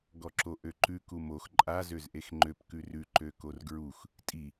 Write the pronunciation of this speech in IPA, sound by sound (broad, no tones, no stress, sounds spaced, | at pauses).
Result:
ɡ ɔ ǁ o ʔ ø ǃ ʉ k u m o x ǃʼ a z ø z ʔ e x ŋ͡ǃ ø p k ʉ r ʉ ǃ ø k o r ɡ ɹ u x | tʼ i